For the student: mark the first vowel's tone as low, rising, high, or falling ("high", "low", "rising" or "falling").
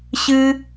high